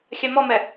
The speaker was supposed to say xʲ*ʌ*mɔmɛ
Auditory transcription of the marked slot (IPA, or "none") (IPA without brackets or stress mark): a